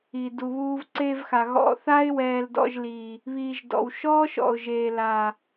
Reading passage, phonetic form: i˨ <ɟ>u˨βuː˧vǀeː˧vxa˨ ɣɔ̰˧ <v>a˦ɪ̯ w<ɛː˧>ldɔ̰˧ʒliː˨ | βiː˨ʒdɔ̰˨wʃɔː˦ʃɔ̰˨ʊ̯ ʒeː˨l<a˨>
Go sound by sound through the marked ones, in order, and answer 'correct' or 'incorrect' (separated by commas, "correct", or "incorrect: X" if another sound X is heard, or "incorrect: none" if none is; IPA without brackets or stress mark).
incorrect: d, incorrect: θ, correct, correct